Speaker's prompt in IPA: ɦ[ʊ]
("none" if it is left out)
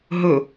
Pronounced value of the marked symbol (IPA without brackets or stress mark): ɵ